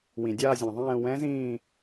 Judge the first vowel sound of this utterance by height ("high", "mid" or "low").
high